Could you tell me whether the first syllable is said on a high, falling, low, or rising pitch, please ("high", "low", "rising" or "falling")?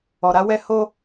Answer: low